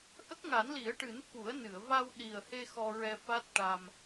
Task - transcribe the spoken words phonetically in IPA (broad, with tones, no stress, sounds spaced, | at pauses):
ʔ ə˦˥ k̚ ŋ a˨˩˦ n l i˨˩˦ ə̯ ʈ ɨ˨˩˦ n f u˨˩˦ ə̯ n ɨ˨˩˨ ə̯ v a˧ w ɗ i˨˩ ə̯ h e˧ x ɔ˧ ɹ ɛ˧ f a˦˥ t̚ ʈ a˧ m